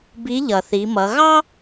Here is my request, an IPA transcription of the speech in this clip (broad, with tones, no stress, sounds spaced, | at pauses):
b i˧˥ ʎ ʌ˩ θ i˩˧ m ʌ˩˧ ɣ ɑ˥